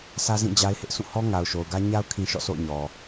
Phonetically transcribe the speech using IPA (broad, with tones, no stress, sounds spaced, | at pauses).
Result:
sʰ ä˦ z ĩ˦˨ d͡ʑ a˦ ɪ̯ h ɪ˦ ʔ s ũ˦˨ h ɔ˦ ŋ a˨ ʊ̯ ʃ o˨ ʊ̯ ɡ ä˦ ɲ a˦ ʊ̯ kʰ ĩ˦ ʃ ɔ̰˦˨ sʰ o̰˦˨ ʊ̯ ɲ ɔ˨